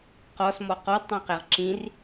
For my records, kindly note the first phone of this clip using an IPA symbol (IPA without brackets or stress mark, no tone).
q